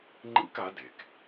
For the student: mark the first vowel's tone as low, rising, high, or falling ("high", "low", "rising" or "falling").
high